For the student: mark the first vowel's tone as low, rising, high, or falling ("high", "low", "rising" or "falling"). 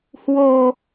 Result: low